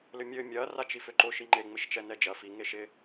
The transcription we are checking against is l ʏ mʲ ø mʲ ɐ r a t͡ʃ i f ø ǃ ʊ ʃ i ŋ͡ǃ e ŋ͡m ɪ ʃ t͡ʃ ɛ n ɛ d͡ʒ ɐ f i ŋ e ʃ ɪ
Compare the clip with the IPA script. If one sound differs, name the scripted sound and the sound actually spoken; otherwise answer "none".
none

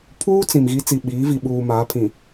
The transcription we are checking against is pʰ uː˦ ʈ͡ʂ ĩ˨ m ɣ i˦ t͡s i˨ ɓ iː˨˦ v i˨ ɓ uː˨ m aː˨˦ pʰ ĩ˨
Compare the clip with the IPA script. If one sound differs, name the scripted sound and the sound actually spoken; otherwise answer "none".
ʈ͡ʂ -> t͡s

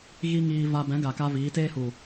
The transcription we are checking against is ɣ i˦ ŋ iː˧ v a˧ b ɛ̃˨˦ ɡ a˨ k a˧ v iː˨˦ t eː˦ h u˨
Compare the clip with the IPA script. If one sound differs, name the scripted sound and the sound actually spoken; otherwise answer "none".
none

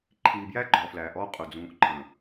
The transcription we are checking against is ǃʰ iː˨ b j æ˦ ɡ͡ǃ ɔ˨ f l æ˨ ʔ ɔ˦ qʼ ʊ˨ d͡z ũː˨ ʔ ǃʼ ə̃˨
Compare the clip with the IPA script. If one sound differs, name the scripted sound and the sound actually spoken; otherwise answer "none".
none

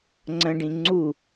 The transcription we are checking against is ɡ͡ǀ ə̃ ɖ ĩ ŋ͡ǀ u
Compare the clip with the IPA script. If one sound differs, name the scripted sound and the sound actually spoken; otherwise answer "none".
ɡ͡ǀ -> ŋ͡ǀ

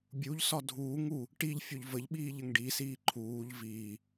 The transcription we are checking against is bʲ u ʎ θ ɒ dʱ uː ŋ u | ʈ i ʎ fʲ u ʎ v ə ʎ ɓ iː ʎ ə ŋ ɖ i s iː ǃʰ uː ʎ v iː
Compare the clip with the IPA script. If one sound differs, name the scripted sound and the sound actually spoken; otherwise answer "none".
θ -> s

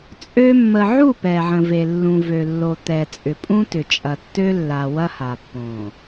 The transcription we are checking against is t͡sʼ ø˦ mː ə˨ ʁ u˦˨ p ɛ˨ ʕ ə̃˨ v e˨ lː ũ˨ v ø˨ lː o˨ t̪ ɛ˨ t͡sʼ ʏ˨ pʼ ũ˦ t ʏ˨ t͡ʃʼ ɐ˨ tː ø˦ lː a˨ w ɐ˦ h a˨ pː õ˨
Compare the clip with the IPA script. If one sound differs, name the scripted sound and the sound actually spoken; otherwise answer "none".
ʁ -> ʕ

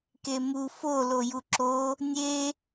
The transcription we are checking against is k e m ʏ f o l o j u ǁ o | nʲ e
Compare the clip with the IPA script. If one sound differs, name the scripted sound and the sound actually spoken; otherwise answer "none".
ʏ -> u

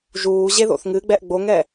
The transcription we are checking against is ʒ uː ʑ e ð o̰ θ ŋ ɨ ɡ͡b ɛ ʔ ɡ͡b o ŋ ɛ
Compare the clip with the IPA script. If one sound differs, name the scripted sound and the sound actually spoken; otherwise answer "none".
none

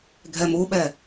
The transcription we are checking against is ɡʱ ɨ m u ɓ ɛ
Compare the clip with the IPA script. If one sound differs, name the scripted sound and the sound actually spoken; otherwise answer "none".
ɨ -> ɛ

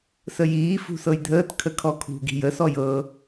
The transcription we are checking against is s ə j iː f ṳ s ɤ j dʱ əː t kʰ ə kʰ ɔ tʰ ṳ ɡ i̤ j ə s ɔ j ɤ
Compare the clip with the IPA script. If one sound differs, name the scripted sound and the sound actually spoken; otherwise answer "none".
tʰ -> kʰ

